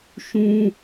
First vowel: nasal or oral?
nasal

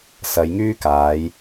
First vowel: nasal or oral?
oral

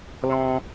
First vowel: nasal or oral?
nasal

